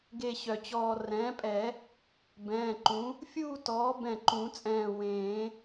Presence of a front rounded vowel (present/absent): present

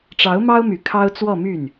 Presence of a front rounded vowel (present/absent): present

